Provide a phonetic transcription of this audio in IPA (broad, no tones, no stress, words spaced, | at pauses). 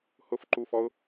hʊf ǃufɔʊ̯